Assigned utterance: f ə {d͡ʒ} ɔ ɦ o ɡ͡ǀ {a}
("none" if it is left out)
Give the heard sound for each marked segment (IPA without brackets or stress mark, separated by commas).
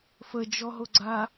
d͡ʒ, a